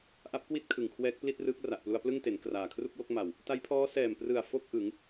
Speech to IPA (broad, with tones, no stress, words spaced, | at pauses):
ʔa˦˥p̚kwi˥˩t̚ kʰɯ˨˩ŋkʰwɛː˦˥k̚pli˥˩t̚rɯː˦˥k̚ ra˨˩ʔplu˧a̯ plɯ˥˩ŋte˩˦n kraː˨˩kʰru˥˩k̚wo˥˩k̚ ma˨˩w | ta˦˥jpʰɔː˦˥ sɛː˨˩mprɯ˨˩a̯ fo˥˩k̚ʔɯ˩˦ŋ